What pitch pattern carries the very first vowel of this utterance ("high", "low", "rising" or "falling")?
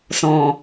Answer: low